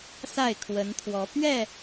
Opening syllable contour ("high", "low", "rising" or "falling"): falling